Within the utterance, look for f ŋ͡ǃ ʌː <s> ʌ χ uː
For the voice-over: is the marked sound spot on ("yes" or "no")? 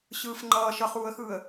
no